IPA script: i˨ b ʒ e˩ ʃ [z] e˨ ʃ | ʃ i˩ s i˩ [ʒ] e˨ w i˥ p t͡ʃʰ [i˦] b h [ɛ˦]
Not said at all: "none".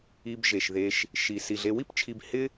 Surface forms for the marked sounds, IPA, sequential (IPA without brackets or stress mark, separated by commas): ð, ɮ, i˨, ɪ˦